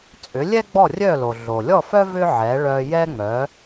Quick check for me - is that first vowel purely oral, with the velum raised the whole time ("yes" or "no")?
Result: yes